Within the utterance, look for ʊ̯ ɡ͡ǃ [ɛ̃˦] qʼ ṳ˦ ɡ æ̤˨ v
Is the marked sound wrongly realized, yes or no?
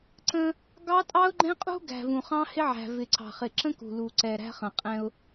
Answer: no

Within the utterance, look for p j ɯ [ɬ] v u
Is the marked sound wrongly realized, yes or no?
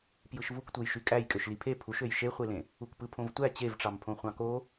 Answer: yes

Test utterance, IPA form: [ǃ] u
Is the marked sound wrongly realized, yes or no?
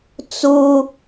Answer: yes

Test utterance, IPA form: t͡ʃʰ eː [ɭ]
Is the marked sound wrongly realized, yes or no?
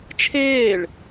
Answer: no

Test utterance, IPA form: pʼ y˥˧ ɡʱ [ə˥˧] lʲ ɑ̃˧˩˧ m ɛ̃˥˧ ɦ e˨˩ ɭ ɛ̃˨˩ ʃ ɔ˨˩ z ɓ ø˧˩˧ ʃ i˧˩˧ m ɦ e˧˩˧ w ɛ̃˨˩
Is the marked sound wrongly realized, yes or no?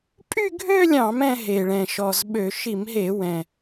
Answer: yes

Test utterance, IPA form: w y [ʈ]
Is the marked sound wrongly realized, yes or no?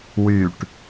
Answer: no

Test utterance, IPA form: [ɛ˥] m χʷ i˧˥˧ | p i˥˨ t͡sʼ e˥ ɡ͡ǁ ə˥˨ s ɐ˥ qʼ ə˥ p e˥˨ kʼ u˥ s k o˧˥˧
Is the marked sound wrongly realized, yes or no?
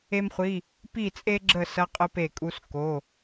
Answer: yes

